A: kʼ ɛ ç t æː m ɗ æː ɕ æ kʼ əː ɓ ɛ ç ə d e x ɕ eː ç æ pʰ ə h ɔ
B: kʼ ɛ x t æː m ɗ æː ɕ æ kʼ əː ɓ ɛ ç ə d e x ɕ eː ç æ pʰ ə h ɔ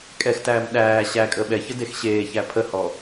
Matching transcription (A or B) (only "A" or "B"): B